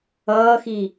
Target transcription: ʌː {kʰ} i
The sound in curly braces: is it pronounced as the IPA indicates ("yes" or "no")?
no